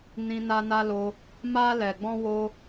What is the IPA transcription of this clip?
n ĩ˧ n a˧ n a˧ l o˧ | m a˧ l ɛ˨ ɡ͡b ɔ̃˧ w o˧

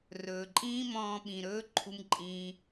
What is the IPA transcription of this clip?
r ɵː˨ ǃʼ ĩː˦ m ɔ̃ː˧ ɓ ĩ˨ ɾ ɵː˦ ǃʰ u˦ m ǃʼ ĩː˦

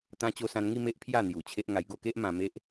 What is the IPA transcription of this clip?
t̪ ã˧ t͡ɕ o˧ s ã˧ n ŋ i˥˧ m e˦ ʔ pʰ j a˥˧ n̪ j u˨˩ t͡ɕʰ e˦ ʔ ŋ a˧ j ɡ o˥˧ k e˦ ʔ m ã˧ m e˦ ʔ

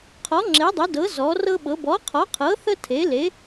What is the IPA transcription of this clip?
qʰ ɔ˨˥ ŋ͡ǁ e˨˥ dˤ ə˨˥ d ɤ˨˥ z ɔ˨˥ r ɤ˥ ɓ ɤ˨˥ b ɔ˨˥ qʰ ɔ˨˥ qʰ ɤ˨˥ θ ə˥ tʰ e˨˥ l e˨˥

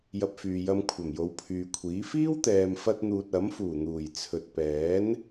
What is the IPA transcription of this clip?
j ɐ˧ p̚ f yː˨ j ɐ˧ m kʷʰ ɐ˨˩ m j o˨˧ w pʰ yː˨ kʷʰ iː˨˥ f iː˥ w t̪ ɛː˨ m f ɐ˥ t̚ n̪ uː˧ t̚ ɐ˨˥ m f uː˨˩ n̪ uː˨˩ j t͡sʰ ɵ˨ t̚ p ɛː˨˥ n

